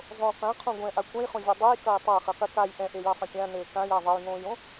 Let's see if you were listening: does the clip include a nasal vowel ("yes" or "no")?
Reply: yes